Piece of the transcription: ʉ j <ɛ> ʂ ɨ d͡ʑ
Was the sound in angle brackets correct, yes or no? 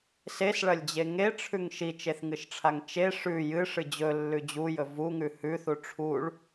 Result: no